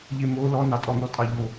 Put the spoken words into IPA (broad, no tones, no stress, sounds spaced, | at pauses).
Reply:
ʎ e m o l ɔ n ɑ tʼ ɔ n̪ ɔ tʼ ɑ ʎ o